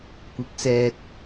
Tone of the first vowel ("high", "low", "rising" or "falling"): rising